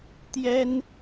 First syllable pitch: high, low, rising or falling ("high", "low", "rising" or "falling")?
high